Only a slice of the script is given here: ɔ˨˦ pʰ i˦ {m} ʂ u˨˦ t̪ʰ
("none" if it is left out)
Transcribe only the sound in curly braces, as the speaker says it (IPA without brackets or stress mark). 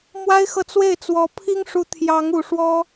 ŋ